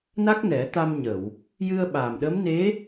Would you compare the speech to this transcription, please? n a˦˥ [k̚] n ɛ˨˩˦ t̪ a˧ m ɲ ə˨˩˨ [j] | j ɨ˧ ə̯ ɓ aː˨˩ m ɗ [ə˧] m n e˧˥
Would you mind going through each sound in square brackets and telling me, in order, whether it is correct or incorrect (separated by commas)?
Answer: correct, incorrect, incorrect